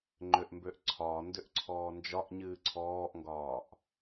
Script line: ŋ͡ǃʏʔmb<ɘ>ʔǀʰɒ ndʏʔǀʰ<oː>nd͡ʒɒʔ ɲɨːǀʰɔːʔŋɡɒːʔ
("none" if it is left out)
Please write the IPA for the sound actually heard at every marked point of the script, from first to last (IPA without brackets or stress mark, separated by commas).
ø, ɔː